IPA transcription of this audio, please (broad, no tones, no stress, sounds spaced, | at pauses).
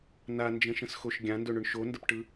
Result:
n a n d͡ʒ ə̃ ʃ ə̃ s x o ʃ ɡʲ ã n d ɵ ɳ ʏ ɳ ʃ o n d ə p ʈ ɯ